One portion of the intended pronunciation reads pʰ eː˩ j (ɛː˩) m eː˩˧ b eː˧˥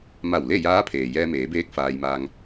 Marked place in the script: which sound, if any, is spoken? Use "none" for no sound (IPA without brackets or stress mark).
ɛː˧